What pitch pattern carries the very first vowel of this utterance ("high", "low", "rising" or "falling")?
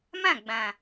falling